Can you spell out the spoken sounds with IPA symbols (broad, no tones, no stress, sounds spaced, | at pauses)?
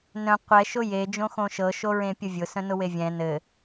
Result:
n œ̃ qʷ ɛ ʃ ʊ j e d͡ʒ õ x õ ʃ ɤ ʃ o ɹ ẽ pʲ ʊ vʲ ʊ s œ̃ n ʊ w e vʲ ɛ̃ n ɘ